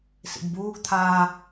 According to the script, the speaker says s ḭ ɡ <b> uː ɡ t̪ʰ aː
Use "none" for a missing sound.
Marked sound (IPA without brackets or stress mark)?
b